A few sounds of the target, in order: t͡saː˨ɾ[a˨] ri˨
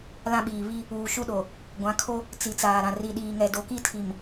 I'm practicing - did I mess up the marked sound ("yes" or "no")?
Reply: yes